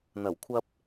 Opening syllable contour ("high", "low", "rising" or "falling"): low